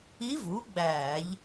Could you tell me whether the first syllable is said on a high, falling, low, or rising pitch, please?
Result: rising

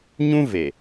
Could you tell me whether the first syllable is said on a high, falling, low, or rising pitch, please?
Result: high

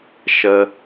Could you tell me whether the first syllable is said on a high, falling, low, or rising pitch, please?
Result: low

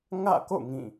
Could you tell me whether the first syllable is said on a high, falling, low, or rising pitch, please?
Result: falling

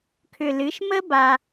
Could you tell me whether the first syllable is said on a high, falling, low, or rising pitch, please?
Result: low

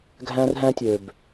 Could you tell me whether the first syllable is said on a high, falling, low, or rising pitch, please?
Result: high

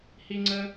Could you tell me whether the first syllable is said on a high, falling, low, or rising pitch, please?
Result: high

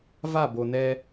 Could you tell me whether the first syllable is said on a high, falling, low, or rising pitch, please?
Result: falling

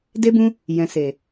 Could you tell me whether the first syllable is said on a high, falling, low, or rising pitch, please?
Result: high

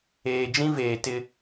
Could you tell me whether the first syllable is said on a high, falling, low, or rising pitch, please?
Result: low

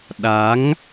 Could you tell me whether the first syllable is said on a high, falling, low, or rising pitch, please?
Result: rising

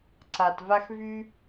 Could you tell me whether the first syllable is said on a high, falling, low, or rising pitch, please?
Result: low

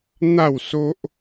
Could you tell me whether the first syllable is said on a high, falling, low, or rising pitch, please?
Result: falling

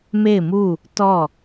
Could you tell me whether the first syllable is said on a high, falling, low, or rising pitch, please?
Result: falling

